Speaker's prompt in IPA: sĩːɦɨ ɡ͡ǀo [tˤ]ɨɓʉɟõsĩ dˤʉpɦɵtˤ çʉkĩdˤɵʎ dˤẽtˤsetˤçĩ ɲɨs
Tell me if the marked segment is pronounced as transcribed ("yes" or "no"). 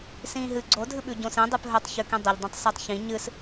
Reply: no